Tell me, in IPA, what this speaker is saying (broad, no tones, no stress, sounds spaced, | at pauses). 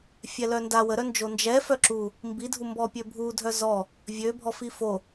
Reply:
fʲ ɛ l œ n d a w ə ɾ œ n d͡ʒ o n d͡ʒ ɛ f œ ǁ u | m b i dʱ u m b ɔ pʲ ø bʱ u dʱ œ z ɔ | vʲ ø bʱ ɔ f i f o